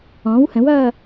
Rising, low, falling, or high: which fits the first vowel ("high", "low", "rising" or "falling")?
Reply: rising